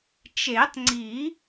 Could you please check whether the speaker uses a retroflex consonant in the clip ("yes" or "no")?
no